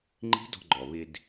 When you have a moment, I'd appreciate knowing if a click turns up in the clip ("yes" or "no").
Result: yes